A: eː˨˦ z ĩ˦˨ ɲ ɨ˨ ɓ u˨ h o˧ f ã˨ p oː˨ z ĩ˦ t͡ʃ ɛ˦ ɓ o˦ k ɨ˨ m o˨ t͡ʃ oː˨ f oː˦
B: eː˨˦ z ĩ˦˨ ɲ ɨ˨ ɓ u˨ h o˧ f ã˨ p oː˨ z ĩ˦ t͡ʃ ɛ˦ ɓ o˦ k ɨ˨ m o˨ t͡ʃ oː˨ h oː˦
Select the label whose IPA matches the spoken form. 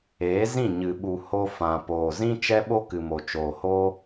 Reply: B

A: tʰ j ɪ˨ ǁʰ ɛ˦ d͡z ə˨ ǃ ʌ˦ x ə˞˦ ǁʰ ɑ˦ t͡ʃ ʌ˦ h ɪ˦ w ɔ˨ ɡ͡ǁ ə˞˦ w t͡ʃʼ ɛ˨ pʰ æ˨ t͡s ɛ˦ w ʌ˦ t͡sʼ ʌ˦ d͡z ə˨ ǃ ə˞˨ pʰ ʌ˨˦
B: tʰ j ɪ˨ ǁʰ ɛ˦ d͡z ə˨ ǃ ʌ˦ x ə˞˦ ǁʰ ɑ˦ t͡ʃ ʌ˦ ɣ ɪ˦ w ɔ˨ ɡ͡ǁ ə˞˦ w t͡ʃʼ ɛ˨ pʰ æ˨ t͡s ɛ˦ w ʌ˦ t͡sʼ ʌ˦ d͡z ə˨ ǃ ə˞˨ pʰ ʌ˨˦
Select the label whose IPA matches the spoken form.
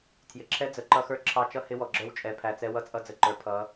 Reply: A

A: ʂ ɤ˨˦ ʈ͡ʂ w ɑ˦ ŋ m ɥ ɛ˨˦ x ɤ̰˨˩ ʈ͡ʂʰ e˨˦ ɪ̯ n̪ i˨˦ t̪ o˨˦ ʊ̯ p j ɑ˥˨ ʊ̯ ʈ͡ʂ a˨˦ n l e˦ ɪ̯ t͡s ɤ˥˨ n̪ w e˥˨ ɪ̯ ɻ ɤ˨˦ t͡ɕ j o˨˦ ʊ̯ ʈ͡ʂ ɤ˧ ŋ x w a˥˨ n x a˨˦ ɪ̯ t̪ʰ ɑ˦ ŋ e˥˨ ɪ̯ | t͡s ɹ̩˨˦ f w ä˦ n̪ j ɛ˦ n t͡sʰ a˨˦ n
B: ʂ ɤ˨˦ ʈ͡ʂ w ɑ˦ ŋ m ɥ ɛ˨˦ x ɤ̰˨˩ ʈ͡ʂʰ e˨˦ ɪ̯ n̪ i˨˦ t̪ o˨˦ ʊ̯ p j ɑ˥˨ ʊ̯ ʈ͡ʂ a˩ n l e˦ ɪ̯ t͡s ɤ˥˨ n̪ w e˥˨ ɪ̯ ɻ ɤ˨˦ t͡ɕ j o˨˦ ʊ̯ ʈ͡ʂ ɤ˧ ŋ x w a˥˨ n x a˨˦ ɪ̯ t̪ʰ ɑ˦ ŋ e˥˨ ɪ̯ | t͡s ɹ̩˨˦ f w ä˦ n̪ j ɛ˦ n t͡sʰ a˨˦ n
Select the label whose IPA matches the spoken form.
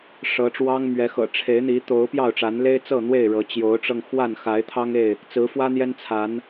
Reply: A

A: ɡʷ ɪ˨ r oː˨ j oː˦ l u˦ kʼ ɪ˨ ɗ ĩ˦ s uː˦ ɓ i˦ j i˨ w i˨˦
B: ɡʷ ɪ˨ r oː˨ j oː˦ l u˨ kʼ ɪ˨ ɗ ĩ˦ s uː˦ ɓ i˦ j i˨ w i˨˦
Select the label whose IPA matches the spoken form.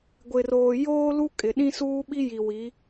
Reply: A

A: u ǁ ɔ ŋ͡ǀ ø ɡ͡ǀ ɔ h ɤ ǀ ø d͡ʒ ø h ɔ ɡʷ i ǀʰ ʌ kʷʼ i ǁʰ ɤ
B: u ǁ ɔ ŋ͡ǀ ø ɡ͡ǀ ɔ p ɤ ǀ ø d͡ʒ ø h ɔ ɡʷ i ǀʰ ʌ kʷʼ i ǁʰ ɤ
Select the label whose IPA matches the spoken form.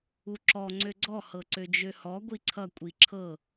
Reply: A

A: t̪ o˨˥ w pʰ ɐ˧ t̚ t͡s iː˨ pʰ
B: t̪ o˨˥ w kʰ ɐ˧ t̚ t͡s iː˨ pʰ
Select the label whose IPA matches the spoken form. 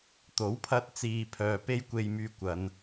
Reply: A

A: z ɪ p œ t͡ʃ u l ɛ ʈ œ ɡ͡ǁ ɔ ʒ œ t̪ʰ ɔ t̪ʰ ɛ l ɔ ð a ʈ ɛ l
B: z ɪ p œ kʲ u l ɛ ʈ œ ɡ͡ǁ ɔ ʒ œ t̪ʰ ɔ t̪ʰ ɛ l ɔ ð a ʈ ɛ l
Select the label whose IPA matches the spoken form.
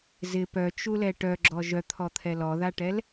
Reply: A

